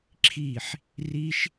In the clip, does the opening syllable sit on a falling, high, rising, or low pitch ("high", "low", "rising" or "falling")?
falling